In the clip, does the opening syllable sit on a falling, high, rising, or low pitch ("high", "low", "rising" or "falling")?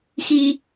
high